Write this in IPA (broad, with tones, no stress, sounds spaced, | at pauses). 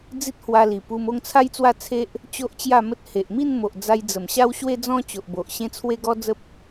d͡z i˦ t̚ h w a˧ l i˨˩ p u˧ m o˥˧ ŋ t͡sʰ a˦ j t͡s w a˥˧ t͡sʰ e˦ ʔ | t͡ɕ o˦ ʔ t͡ɕ j a˥˧ m ə˦ t̚ h e˨ ʔ m i˥˧ n m o˨ ʔ d͡z a˧ j d͡z ə˨˩ m ɕ a˦ w ɕ w e˦ d͡z ɔ̃˦ t͡ɕ o˨ ʔ b o˨ ʔ ɕ ẽ˧ t͡sʰ w e˧ ɡ ɔ˧ d͡z ə˦ p̚